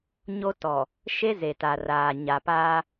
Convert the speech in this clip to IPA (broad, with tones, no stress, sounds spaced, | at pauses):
ɲ o˦ t ɔ˨ | ʃ e˦ z e˨ t a˨ r aː˨ ɲ a˨ p aː˦